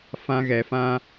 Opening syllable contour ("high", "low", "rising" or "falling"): high